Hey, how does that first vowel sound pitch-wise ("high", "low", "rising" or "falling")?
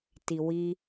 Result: low